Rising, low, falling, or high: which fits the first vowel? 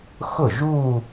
falling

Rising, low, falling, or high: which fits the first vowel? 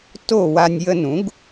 falling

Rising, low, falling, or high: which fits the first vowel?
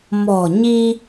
low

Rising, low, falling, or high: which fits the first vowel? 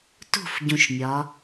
falling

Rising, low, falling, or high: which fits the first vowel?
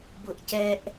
high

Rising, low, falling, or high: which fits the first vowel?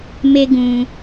high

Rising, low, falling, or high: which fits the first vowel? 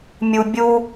low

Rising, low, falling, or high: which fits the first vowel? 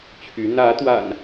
rising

